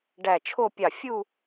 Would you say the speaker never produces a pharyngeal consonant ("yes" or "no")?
yes